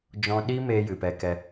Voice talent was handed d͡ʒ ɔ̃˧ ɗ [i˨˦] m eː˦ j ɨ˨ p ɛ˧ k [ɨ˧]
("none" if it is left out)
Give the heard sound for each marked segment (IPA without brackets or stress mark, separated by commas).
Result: i˦, ɛ˧